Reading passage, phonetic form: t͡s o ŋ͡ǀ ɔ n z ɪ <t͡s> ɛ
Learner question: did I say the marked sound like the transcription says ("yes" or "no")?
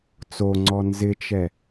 no